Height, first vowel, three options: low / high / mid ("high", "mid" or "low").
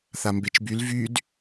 low